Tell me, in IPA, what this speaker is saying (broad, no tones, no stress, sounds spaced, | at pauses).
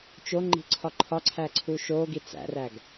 t͡ʃ o ŋ͡ǃ i̤ ǀʰ ɒ ǃʰ ɒ ǀʰ æ ǀʰ u ʃ o ɡ i t͡s æ̰ r æ ɡ